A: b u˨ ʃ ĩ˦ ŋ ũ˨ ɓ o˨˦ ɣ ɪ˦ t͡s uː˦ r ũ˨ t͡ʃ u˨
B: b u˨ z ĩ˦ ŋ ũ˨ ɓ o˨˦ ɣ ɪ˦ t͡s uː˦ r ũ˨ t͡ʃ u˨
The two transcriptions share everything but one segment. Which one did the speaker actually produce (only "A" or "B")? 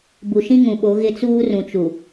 A